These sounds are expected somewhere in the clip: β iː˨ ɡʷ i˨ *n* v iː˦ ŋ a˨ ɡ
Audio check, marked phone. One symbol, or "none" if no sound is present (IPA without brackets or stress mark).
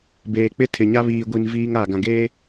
n